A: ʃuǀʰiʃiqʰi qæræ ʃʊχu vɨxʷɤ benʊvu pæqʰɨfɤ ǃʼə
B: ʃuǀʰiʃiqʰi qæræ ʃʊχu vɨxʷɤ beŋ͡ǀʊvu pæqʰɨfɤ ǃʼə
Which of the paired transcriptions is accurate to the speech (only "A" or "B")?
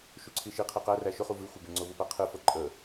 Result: B